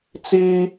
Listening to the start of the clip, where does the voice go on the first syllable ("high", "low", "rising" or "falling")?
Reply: high